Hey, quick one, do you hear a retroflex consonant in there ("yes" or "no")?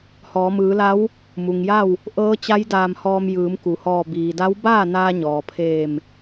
no